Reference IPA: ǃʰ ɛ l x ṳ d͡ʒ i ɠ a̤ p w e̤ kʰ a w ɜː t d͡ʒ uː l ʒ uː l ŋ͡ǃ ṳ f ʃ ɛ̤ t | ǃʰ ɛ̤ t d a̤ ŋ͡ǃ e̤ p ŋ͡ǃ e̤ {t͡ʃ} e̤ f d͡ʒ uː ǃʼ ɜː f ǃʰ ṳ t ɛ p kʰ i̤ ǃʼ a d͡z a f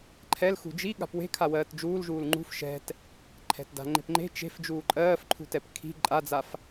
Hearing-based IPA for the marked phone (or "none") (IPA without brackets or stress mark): t͡ʃ